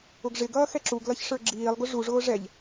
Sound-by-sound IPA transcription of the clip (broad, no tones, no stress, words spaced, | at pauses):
ʊɡʐɪɡʌː xɛǁuɡlʌç ʂə˞ɡ͡ǁiːlˠɡʊ ʐuʐʊː ʐɛʎ